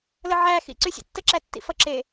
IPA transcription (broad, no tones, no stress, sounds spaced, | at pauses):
l ə ʕ æ x ḭ ǀ y sʲ ə̰ tː ə ǁ æ tː ḭ f ʌ ǁ e